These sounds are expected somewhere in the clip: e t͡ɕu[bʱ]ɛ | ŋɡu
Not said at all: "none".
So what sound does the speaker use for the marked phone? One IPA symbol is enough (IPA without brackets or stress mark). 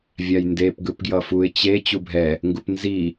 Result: bʱ